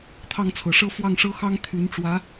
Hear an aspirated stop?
yes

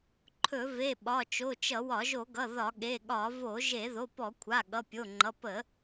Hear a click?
yes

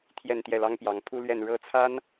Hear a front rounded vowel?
no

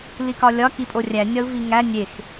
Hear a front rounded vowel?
no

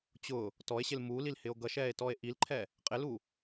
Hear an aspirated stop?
yes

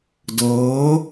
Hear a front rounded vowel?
no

